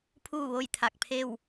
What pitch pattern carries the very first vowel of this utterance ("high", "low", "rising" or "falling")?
falling